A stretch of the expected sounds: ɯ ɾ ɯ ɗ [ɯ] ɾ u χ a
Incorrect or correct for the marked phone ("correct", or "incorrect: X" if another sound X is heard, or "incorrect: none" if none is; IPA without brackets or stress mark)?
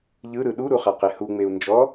incorrect: u